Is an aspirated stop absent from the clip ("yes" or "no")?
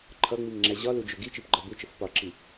no